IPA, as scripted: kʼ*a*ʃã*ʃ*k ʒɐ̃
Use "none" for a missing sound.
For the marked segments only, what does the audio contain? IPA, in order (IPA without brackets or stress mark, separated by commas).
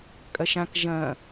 ɐ, none